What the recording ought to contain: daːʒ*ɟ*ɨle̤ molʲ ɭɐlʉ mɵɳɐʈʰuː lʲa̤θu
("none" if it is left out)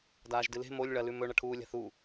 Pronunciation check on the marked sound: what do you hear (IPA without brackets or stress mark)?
d